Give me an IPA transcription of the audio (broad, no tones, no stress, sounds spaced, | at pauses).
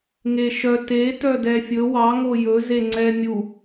ŋ e ʃ œ t e t œ d ɛ fʲ ɵ w ɑ ŋ o j ɵ z e ŋ͡ǀ ɛ mʲ u